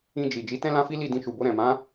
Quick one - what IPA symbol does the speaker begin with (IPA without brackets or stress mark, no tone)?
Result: ĩ